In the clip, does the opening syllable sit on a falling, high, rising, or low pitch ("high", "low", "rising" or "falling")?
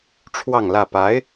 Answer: falling